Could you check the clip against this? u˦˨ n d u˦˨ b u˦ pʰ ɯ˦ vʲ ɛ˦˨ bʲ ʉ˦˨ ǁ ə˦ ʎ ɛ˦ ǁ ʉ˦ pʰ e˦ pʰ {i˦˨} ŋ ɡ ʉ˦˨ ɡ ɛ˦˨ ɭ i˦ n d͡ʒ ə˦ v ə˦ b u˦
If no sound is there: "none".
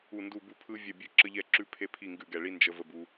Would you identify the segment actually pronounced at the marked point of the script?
i˦˨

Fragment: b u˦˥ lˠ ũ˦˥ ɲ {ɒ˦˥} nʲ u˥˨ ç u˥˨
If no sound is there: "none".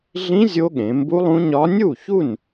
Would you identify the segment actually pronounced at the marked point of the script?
ɒ˦˥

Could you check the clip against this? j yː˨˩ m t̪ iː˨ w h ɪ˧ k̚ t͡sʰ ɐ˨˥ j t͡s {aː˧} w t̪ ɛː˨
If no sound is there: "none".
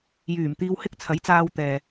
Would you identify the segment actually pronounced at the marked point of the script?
aː˧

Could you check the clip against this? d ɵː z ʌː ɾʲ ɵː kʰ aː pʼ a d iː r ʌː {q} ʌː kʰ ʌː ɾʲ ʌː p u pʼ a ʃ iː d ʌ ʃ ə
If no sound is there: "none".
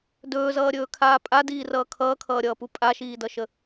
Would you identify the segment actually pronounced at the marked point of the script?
kʰ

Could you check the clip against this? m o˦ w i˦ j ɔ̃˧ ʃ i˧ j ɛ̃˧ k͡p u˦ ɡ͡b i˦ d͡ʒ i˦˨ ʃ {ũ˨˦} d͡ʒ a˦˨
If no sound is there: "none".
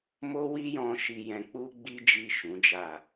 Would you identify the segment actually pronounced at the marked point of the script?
ũ˨˦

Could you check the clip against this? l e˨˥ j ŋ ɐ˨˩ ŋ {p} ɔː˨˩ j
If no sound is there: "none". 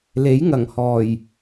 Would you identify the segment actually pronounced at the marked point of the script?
h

